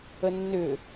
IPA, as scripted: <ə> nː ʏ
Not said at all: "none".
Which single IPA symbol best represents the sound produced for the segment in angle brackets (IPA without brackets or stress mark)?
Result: ə